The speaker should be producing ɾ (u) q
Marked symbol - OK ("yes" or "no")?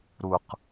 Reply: yes